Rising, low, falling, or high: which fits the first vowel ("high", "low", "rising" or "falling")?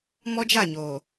high